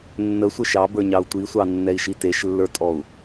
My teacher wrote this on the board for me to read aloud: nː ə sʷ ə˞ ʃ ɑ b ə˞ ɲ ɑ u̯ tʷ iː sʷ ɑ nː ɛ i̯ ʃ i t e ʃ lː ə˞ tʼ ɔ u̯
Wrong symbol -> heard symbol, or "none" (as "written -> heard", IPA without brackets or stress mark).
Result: iː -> i